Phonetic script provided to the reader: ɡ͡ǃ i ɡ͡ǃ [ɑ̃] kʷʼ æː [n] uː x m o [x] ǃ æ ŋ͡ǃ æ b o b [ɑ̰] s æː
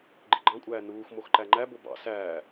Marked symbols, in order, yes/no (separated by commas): yes, yes, yes, yes